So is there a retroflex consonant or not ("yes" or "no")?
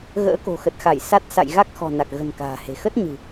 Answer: no